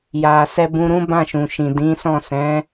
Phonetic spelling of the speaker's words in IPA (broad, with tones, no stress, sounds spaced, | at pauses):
j a˨ s ɛ˧ b ũ˧ ɾ ũ˦ b ã˦˨ ʃ ũ˨ ʃ ĩ˨ d ĩ˨˦ s ɔ̃˦˨ s ɛ̃˨˦